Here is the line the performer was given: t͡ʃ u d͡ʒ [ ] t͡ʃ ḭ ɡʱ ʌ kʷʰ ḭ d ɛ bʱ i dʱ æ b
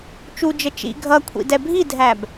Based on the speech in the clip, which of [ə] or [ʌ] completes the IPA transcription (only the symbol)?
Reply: ə